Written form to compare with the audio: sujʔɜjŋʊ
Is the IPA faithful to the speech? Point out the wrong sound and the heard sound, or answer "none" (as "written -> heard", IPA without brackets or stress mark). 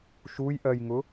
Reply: s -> ʃ